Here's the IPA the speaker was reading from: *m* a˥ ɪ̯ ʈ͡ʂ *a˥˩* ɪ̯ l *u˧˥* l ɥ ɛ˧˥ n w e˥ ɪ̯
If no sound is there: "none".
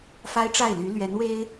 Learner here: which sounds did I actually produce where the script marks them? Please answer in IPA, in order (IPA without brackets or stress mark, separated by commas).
f, a˥˩, y˧˥